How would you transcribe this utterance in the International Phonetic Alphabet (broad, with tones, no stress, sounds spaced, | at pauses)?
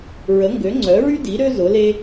ɹ ə˩˥ ŋ ɡ ø˩˥ ŋ͡ǀ œ˩˥ ɹ y˥ d i˩˥ ɾ ø˥ z ʊ˩˥ l e˥